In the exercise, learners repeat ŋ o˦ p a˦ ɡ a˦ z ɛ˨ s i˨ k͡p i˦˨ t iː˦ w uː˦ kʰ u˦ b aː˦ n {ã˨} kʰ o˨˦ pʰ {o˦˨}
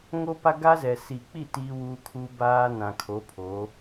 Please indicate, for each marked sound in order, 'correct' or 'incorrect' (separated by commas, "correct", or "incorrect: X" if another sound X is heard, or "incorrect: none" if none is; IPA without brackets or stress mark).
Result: correct, incorrect: o˨˦